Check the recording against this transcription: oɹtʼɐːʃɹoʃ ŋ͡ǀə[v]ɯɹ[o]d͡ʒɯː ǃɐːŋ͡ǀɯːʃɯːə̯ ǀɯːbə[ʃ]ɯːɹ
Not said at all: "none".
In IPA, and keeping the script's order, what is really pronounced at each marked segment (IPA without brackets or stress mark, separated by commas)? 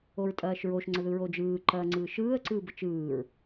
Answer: ð, o, t͡ʃ